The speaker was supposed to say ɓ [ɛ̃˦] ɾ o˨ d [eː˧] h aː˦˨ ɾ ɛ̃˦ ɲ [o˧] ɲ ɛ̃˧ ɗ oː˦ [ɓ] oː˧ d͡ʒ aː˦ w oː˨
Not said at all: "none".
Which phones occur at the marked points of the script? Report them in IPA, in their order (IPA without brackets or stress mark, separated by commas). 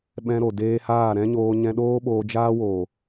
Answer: ɛ̃˧, eː˧, oː˧, ɓ